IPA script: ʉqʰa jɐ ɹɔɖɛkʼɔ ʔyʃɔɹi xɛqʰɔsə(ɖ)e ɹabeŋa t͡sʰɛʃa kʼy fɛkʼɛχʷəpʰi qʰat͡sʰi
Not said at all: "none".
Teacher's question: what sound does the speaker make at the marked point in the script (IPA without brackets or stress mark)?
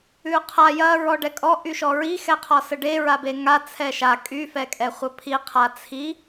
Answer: ɖ